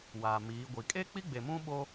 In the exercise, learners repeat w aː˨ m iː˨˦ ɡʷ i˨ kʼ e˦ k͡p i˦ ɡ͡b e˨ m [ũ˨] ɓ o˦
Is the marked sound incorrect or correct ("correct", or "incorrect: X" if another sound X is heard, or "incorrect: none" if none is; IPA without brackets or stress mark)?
incorrect: ũ˦